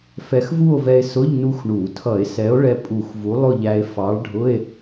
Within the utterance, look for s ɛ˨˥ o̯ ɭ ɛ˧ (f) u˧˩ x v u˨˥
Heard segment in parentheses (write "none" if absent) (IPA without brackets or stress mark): pʼ